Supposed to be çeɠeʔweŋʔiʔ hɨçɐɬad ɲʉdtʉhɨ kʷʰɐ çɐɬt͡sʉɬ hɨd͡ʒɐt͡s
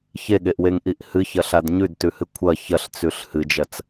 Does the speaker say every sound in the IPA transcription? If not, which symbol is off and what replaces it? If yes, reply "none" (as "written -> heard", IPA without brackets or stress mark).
none